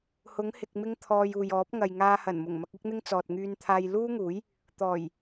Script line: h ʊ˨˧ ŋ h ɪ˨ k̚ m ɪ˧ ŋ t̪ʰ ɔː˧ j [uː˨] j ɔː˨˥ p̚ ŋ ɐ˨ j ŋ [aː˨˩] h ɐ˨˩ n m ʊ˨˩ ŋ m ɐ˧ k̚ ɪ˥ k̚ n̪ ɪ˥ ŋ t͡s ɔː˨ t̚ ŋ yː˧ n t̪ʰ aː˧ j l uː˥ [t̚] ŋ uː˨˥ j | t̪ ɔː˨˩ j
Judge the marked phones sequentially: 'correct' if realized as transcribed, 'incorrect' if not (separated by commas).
correct, incorrect, incorrect